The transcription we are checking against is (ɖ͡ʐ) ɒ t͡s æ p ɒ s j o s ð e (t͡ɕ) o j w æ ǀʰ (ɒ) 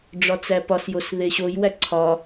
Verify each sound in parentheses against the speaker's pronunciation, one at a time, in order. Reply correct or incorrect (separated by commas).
correct, incorrect, correct